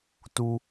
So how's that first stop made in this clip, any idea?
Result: plain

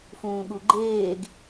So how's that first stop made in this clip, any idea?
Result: implosive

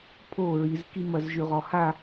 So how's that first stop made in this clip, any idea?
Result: aspirated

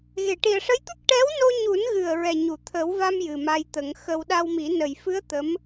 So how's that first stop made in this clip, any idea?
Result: plain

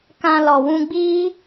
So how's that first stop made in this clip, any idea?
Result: plain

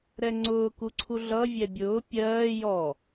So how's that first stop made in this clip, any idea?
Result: click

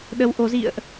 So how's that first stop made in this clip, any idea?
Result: implosive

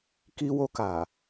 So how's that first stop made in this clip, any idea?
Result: plain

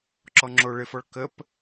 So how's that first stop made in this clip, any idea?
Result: click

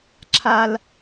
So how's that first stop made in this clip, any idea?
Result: click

